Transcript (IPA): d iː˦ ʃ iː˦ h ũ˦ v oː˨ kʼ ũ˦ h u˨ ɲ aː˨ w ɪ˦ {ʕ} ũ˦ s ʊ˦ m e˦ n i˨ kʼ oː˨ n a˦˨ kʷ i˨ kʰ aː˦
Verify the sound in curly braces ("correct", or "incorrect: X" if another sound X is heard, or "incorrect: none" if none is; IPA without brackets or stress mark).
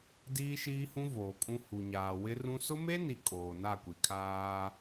incorrect: r